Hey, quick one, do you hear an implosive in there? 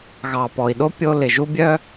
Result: yes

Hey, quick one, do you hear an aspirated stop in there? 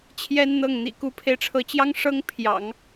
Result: yes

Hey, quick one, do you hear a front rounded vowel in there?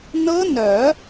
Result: yes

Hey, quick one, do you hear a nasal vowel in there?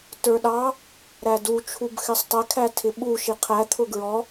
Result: no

